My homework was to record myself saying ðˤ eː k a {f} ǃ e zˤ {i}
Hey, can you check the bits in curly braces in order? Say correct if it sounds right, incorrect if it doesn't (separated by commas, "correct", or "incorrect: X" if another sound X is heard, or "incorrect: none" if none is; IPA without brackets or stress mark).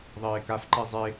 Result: correct, incorrect: e